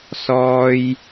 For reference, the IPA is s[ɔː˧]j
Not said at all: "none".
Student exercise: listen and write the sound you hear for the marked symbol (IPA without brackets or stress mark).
ɔː˥